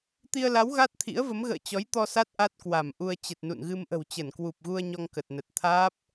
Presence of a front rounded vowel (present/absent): absent